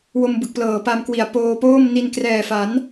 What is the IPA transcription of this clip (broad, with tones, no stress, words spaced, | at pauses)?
wo˧m bɯ˨˩k̚plɤː˨˩pa˧mkwi˨˩a̯ poː˧poː˥˩m ni˧n krɛː˨˩fa˩˦n